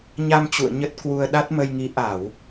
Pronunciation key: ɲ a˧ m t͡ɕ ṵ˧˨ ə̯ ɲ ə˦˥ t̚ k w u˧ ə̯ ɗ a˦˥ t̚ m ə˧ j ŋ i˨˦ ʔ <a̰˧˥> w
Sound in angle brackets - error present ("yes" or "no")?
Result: yes